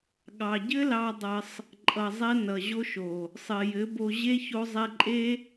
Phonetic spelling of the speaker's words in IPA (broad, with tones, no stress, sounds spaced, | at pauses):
ɠ ɑ˨ ɟ ɘ˦ l ɑ˧ dˤ ʌ˧ sˤ | ǃʼ ʌ˨ zˤ ɛ˧ n ʌ˨ ʑ o˧ ʃ o˨ | sˤ ɘ˨ j ɘ˨˦ b o˧ ʑ e˦ ç o˧ zˤ ɛ˧ ǃʼ e˦